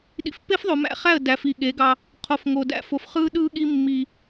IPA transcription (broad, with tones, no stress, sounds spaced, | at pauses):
ɗ ḭ˨ f pː e˦ f ðˤ o˨ m æ̰˦ χ æ˦˨ ə̯ d æ˨ f i˨ ɠ e˨˦ ɡ ɑ˦ | qʰ o˨ f ŋ o˨ d æ̰˦ f o˨ f χ ɯː˦ ɗ ɯː˦ ɠ i˦ mː i˦